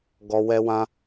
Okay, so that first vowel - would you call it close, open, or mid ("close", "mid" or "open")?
mid